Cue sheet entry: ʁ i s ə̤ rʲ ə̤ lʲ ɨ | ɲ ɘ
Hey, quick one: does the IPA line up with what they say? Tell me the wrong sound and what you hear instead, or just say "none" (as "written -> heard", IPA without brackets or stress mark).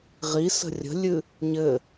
none